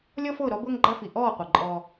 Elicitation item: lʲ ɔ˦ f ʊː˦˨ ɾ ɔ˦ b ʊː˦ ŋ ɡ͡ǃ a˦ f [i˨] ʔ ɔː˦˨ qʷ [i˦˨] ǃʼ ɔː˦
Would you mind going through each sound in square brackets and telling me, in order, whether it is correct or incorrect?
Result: correct, incorrect

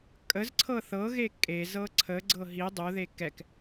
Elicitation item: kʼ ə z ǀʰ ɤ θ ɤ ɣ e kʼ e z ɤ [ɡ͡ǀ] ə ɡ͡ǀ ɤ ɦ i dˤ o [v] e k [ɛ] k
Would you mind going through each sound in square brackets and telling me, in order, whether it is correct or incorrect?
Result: incorrect, incorrect, correct

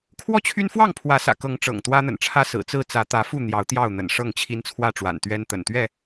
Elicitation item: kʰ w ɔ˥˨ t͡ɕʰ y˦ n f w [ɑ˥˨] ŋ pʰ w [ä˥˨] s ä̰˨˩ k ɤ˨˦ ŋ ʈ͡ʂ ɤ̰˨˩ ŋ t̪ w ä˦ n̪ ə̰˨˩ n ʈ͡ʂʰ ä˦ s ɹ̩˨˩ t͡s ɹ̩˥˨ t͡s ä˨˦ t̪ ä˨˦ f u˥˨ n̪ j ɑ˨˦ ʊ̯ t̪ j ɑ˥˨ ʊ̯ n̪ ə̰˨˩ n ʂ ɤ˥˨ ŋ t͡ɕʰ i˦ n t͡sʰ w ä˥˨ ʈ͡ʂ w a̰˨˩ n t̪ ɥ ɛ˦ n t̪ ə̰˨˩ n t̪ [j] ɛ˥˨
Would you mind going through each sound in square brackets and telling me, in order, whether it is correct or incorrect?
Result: correct, incorrect, incorrect

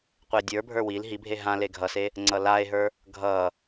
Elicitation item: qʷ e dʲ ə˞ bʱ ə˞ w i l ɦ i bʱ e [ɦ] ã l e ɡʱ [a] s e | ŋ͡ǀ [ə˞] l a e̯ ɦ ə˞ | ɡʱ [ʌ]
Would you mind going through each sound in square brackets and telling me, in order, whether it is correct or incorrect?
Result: correct, incorrect, incorrect, correct

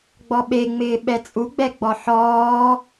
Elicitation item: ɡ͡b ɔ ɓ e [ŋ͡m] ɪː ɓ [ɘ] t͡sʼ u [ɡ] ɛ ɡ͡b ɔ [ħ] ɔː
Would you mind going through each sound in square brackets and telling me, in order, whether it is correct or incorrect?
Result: correct, incorrect, incorrect, correct

